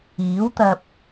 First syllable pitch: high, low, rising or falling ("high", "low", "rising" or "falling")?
rising